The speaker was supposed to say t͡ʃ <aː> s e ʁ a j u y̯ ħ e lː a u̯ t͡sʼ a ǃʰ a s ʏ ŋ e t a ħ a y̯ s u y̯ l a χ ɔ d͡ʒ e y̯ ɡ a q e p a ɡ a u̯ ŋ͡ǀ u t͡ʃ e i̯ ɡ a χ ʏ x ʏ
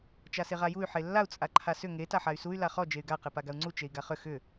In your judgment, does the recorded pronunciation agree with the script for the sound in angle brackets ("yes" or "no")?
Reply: no